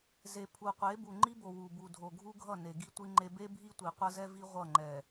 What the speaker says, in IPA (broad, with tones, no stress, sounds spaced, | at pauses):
z e˨ pʰ u˨ qʷ e˨˦ b u˨ ŋ͡ǃ i˦ b o˨ w u˨ b u˨ dʱ o˨ ɡʱ u˦ ɡʱ ʌ˦˨ n e˨ ɡ i˦ tʷ i˦ ŋ͡ǃ e˦ b e˦ bʱ i˦ tʷ i˨ qʷ ʌ˦ z ɛ˦ v i˦ ʁʷ ʌ˦˨ ŋ͡ǃ ɛ˨